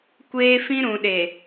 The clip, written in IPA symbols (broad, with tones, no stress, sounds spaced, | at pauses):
kʷ eː˦ f ĩ˦ ɾ ũ˨ ɗ e˨